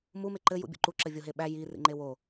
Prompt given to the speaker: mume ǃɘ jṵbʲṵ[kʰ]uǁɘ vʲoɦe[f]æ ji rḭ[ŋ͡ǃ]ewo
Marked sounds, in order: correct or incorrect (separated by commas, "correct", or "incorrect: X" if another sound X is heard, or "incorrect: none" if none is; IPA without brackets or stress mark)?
incorrect: ǃ, incorrect: ɓ, correct